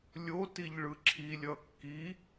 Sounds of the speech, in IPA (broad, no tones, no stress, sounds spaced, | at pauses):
lʲ o t i ʎ ɭ ɯ ǁʰ i lʲ ʌ kː i